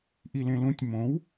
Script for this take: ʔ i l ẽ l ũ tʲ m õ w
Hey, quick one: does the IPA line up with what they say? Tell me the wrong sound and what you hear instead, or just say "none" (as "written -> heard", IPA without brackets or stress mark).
none